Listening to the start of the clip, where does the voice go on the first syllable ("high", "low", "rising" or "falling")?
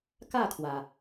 falling